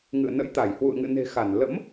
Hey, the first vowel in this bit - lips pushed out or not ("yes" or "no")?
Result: no